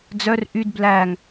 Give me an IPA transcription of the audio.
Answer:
d͡z œ r ʔ y d b l æ ŋ

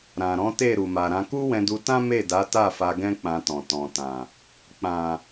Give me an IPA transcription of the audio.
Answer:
ɾ ã˨ ɾ ɔ̃˨˦ t e˦˨ ɾ u˨ m a˨ ɾ ã˧ k u˦ w ɛ̃˧ d u˧ t ã˦ m e˦˨ d a˨˦ t a˦˨ f a˧ ɡ ɛ̃˦ k͡p ã˧ t ɔ̃˨ t ɔ̃˨ t ã˨ | k͡p ã˨

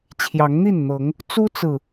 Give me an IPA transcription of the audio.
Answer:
t͡ɕʰ j ɑ˨˦ ŋ n̪ i˥˨ n n̪ ɤ˨˦ ŋ | t͡s u˦ t͡s ɹ̩˨

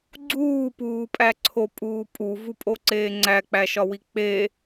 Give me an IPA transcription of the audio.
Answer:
ɡ͡ǀ uː p uː pʼ æ ǀʰ o pʼ uː pʼ u v u pʼ o ǀ eː ŋ͡ǀ æ k͡p æ ʃ ɒ w i k͡p e

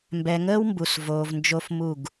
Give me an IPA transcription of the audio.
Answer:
m b ɛ˨ ŋ əː˦ w m b u˨ s v oː˨ v n d͡ʒ o˦ f m u˦˨ ɡ

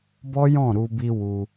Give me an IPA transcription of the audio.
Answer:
b ɔ˦ j ɔ̃˦˨ ɾ u˧ b i˧ w u˧

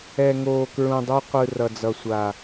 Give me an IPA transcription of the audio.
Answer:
ɛ˨ ŋ oː˨ k ɹ ũ˨ dˤ o˦ qʷ ɯ˨ r ʌ˨ d͡z ʌ˨ sʷ a˨

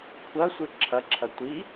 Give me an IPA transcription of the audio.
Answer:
kʷʰ ɐ sʷ ɨ ǁʰ ɐ ǁʰ ɐ tʷ i

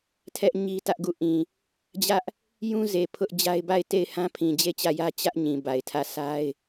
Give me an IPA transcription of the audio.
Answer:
tʰ ɛ˦ ʔ ɲ i˦ t ä˦ ʔ ɡ u˦˨ ʔ ĩ˨ | d͡ʑ ä˦ ʔ | j ũ˦ z e˨ pʰ ʊ˦ ʔ d͡ʑ a˦ ɪ̯ b a˦˨ ɪ̯ t e˦˨ ɪ̯ h ã˦ pʰ ĩ˨ d͡ʑ e˦˨ t͡ɕ ä˦˨ j ä˦ t͡ɕ ä˦ ʔ ɲ ĩ˨ b a˨ ɪ̯ tʰ ä˦˨ s a˦ ɪ̯

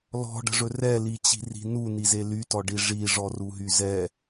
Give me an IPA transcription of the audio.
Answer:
l ɔ̤ ɖ ə̤ ʐ ɵ r ɛ l i t͡ɕ i̤ r i̤ n u n i z e l y t ɔ ɖ i ʐ i ʐ ɔ r u ɦ y z ɛ

